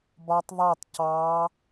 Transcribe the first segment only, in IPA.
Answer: b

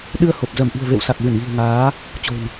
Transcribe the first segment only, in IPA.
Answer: ɗ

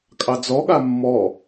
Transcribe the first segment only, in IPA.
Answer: kʼ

